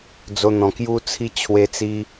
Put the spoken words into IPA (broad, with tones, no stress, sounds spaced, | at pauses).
d͡z o˧ n̪ ɔ̃˨˩ k j u˦ t͡sʰ i˦ t͡ɕʰ w e˧ t͡s i˧